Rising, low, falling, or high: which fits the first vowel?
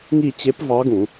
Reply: falling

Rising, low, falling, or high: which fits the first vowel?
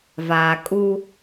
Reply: low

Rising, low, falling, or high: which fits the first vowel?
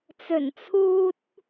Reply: low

